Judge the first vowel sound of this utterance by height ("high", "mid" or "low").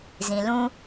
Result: high